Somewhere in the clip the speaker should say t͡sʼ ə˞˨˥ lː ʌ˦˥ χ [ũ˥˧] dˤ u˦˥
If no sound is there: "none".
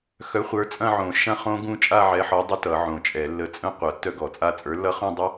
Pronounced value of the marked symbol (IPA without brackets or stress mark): ũ˥˧